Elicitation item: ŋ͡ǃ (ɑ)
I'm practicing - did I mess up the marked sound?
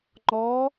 yes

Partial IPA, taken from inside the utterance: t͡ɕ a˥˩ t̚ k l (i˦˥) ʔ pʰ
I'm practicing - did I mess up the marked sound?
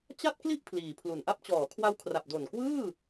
yes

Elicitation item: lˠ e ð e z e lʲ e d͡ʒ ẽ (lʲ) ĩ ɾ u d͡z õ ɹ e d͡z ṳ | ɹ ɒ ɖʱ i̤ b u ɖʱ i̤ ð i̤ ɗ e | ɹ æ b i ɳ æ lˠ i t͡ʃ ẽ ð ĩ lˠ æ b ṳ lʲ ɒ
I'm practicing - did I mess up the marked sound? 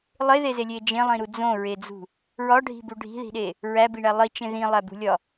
yes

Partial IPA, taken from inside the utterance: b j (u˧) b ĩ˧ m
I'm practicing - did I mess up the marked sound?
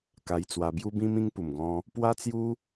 no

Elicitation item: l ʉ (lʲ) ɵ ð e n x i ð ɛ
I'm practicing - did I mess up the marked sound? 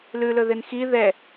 yes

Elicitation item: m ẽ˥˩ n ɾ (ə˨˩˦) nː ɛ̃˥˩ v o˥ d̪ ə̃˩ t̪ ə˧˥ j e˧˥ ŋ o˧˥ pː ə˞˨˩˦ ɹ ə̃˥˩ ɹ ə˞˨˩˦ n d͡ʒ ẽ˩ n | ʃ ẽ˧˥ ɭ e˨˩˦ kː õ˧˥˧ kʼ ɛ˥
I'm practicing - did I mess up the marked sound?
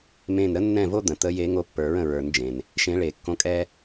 yes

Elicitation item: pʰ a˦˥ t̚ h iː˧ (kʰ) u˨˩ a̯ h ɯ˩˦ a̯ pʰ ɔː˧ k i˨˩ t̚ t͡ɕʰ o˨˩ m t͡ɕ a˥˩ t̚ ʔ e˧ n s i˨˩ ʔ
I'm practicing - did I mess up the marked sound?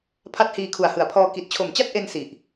no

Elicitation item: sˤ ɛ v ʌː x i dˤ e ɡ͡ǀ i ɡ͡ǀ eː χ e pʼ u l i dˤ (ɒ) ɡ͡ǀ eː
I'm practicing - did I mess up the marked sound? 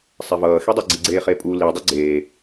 yes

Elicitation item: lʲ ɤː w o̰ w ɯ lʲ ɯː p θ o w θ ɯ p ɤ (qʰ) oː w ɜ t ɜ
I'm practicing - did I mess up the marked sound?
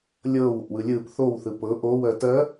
yes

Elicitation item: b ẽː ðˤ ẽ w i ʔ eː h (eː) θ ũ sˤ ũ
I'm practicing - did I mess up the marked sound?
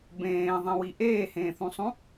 yes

